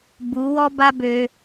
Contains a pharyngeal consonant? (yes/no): no